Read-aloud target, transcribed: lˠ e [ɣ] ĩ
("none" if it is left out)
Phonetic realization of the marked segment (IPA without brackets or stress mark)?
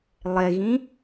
ɣ